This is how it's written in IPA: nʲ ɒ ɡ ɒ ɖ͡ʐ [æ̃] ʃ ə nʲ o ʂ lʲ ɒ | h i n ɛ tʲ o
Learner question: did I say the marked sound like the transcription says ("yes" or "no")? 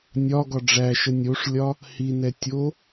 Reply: no